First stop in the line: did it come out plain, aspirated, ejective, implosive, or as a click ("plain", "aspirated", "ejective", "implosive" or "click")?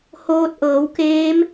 plain